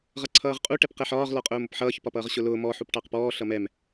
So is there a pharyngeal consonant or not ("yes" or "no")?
yes